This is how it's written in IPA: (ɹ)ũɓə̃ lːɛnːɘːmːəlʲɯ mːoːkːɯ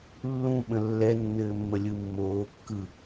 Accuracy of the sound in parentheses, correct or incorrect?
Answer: incorrect